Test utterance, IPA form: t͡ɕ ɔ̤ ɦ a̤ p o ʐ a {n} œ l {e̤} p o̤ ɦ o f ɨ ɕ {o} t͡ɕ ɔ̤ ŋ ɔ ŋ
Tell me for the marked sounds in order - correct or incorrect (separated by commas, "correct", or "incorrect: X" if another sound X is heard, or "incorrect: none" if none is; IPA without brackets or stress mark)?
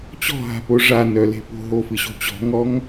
correct, correct, incorrect: o̤